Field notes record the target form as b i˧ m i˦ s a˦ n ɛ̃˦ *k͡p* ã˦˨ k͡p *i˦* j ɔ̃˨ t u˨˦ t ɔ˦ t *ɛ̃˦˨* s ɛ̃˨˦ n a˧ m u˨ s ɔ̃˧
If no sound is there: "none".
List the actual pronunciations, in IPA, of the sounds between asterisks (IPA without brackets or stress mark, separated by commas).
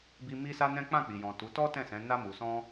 k͡p, i˨, ɛ̃˦˨